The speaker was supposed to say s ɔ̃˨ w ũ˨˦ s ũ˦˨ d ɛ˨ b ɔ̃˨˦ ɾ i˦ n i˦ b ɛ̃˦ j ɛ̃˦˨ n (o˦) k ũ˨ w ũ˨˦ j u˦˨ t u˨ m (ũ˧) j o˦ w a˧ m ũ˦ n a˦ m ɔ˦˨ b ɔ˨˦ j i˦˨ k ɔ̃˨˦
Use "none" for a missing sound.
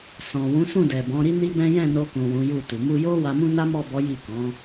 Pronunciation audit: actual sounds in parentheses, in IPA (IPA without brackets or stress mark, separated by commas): o˧, u˧